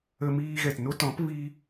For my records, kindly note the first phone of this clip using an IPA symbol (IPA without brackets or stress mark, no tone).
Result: ə